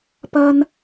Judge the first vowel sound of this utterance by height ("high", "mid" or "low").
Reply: low